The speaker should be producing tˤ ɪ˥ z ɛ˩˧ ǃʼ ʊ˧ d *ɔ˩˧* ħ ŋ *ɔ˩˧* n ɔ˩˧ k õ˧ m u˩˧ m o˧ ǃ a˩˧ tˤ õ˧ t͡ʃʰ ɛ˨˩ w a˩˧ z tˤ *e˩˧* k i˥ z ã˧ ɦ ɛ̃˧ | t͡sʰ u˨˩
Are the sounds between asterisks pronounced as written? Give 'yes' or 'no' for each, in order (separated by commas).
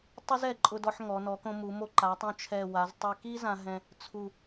no, yes, no